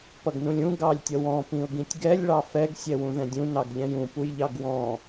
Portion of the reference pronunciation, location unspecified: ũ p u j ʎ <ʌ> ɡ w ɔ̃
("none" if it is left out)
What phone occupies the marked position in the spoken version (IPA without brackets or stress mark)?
ɑ